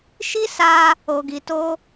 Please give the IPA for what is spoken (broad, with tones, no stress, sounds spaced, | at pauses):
ʃ i˦ s a˧ | o˧ ɡ i˧ t o˦